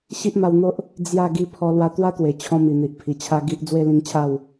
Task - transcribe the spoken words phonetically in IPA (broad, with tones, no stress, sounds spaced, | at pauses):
ɕ i˦ ʔ m a˧ w n̪ o˦ ʔ | d͡z j a˥˧ ɡ i˧ pʰ ɔ˧ l w a˧ t̪ w a˦ t̪ w e˨˩ t͡ɕʰ ɔ̃˧ m i˨˩ n̪ i˨ ʔ pʰ i˨˩ t͡ɕʰ a˧ ɡ i˦ ʔ d͡z w e˦ l ĩ˧ ŋ t͡ɕʰ a˥˧ w